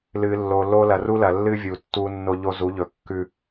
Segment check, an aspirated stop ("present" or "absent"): absent